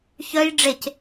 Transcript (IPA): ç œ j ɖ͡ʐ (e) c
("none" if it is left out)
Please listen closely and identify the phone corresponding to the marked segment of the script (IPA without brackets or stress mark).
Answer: e